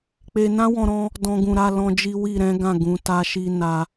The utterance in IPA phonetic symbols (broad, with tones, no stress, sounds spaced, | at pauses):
k͡p e˧ n ã˦ w ɔ̃˧ ɾ ɔ̃˧ | d ɔ̃˧ ɡ ũ˨ ɾ a˧ l ɔ̃˦ d͡ʒ i˦ w i˦˨ ɾ ɛ̃˨˦ ɡ ã˦˨ ɡ ũ˨˦ t a˦ ʃ i˦ n a˧